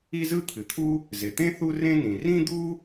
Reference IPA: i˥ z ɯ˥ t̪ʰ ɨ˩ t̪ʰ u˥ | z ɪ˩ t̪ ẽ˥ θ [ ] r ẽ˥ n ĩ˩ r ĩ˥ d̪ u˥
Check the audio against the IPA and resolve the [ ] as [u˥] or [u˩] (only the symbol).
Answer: u˥